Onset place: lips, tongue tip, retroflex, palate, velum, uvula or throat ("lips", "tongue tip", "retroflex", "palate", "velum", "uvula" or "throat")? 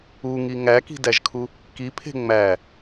velum